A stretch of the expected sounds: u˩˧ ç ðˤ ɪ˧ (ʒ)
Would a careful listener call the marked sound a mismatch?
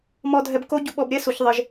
no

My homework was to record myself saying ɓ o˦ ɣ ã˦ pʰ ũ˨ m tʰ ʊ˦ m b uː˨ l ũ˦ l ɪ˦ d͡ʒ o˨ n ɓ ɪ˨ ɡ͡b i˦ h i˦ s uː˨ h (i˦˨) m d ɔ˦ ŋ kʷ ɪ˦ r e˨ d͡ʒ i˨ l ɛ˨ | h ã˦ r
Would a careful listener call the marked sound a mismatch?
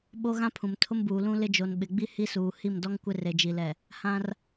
no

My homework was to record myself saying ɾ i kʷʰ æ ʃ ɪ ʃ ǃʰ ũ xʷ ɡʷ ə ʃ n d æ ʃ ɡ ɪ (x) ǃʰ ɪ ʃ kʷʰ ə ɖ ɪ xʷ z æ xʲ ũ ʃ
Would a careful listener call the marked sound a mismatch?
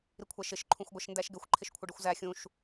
yes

